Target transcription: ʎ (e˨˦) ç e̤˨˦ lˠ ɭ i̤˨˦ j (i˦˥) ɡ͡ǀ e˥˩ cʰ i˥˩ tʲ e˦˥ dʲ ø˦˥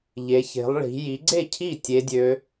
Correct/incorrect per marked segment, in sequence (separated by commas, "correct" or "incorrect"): correct, incorrect